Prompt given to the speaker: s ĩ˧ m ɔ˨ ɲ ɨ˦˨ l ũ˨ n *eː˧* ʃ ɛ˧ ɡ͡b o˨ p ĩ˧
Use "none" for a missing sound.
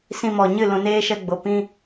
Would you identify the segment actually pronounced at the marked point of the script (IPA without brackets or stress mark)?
eː˧